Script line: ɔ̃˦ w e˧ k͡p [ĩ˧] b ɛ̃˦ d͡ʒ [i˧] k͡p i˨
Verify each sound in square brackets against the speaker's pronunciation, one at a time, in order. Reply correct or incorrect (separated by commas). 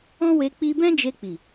incorrect, incorrect